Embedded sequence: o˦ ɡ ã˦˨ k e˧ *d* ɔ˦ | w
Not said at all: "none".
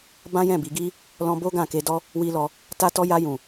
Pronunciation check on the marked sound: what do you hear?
d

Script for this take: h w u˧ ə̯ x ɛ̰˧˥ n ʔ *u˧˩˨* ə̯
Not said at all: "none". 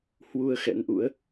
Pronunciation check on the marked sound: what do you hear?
ṵ˧˥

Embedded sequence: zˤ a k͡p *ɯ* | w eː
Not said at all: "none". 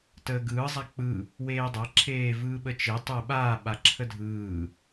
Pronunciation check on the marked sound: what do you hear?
ɯ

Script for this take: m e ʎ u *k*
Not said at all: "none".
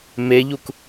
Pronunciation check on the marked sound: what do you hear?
k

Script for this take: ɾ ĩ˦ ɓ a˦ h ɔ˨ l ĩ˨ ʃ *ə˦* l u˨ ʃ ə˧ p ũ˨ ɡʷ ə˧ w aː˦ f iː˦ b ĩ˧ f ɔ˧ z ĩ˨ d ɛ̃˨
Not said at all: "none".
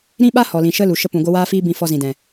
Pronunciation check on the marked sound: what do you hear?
ə˦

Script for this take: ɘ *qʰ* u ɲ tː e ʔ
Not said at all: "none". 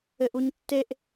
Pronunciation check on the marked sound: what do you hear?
ʔ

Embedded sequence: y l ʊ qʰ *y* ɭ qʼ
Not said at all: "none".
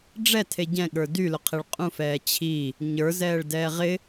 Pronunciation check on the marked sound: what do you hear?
e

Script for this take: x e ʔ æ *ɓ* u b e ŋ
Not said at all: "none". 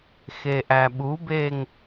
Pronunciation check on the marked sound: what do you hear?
ɓ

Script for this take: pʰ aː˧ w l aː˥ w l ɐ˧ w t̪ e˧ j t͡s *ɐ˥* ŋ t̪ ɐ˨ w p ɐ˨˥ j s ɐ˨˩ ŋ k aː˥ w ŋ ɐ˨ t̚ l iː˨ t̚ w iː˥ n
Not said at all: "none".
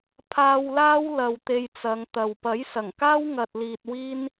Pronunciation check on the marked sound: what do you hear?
ɐ˨˧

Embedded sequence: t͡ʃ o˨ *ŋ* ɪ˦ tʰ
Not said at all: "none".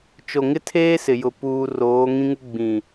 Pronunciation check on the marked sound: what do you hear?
ŋ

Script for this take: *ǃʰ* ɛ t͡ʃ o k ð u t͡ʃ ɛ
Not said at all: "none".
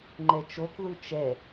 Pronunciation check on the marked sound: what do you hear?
ŋ͡ǃ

